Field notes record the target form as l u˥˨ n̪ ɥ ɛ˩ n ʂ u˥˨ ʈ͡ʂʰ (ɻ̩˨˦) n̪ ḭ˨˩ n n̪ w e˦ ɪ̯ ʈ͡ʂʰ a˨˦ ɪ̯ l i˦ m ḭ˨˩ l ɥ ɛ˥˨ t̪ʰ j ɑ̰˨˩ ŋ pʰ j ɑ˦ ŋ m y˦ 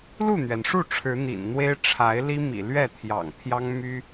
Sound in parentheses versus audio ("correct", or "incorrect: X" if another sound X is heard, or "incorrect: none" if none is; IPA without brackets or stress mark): correct